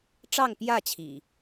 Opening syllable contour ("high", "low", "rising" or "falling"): falling